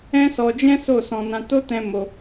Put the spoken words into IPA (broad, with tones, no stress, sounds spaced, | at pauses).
ɛ̃˦ s ɔ˧ d͡ʒ ɛ̃˦ s o˦˨ s ɔ̃˧ n ã˧ t o˦ t ɛ̃˦ m o˧